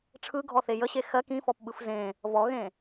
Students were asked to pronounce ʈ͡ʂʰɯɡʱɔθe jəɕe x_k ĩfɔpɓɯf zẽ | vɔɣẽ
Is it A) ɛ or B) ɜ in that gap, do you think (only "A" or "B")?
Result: B